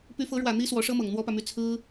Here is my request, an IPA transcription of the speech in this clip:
py˧˥fɤ˧˥ɻwä˨˩ n̪i˥ swɔ˧˥ʂɤ˥mɤ˨˩ŋ n̪wɔ˥pä˨my˥˩ t͡sʰɹ̩˥

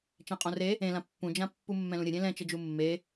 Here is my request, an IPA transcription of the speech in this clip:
t͡ʃɛ̃qʼõre | ẽlã pːũd͡ʒã pːumːɛ̃lũɾʲɘ ɾʲẽlɛ̃t͡ʃɘd͡ʒu mːe

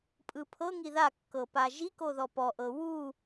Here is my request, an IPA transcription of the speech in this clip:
pʼɯpʰɤ ŋiða kːɤpaʒi koðɔpɔʔɤ wu

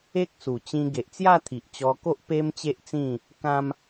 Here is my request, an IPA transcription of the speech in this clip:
e˦k̚su˨˩t͡ɕĩ˧ ɡe˨ʔt͡sja˥˧t̪ʰi˨ʔ t͡ɕɔ˧ko˦ʔ pe˦mt͡ɕe˦ʔt͡sĩ˥˧ | kã˦m

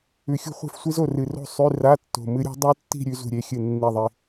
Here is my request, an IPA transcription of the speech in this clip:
ʉ˨˩xʲṳ˥˩χʷe̤˥˧fsʷi˦˥z o˥˩rɨ˨˩ro̤˥˧ sˤʉ˧˥˧ ra˧˥˧tːo̤˨˩ mɨ˦˥ɾʲṳ˦˥ dˤu˦˥tːi̤˥˧ ɾʲʉ˦˥zṳ˥˩ɾʲe˧˥˧xʲɨ˥˩ nːi˥˩ðˤi˥˧

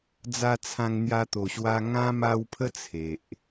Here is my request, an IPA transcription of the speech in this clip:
d͡za˧ t͡sʰã˧ŋn̪ja˧t̪o˨˩ɕwa˧ ŋã˦ma˧wpʰə˦ t͡sʰe˨ʔ

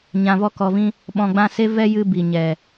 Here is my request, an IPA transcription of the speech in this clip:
ɲã˧vɔ˦kɔ˧vĩ˦ | ɓɔ̃˧ɡ͡bã˦ se˦vɛ˦jɨ˧ bi˨ɲɛ˨

